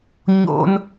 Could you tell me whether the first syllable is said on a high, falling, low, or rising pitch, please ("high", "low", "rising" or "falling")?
high